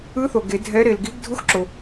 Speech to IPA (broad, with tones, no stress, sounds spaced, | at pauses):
ɯ˧˥ θ o˩ ɡ e˨˩˦ dʱ ɛ˧˥ ɾ e˩ l ɡ i˧˥ ɡ dʱ u˧˥ x ǁ o˩